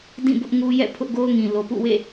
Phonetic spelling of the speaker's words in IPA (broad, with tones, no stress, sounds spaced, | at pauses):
d ĩ˦˨ b ʊ˦ ʔ ŋ u˦ j ɛ̰˦˨ pʰ ʊ˦ ʔ ɡ o˦ ʊ̯ ŋ ĩ˨ l o˨ p ṵ˦˨ w ḛ˦˨